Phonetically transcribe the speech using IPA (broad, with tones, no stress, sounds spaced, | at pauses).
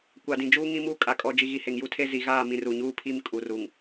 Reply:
kʷ a˨ d ĩ˨ d͡ʒ uː˦ ŋ ĩ˦ m uː˦ kʼ a˨ kʼ ɔ˨ d͡ʒ i˨ ɣ i˨ h e˨ ŋ j u˦ tʰ e˦ z i˨ ɣ aː˦˨ m ĩ˨ r u˨ ɲ uː˦ pʰ i˦ m kʼ u˨ r u˨ ŋ